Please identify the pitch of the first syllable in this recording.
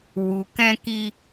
low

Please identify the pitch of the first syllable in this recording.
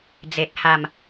low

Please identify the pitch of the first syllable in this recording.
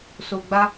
low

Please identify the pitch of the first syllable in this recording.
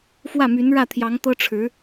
falling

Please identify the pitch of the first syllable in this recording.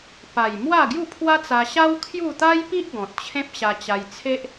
low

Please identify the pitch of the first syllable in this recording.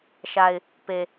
low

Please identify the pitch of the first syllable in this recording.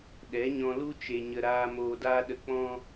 rising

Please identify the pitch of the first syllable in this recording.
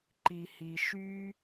low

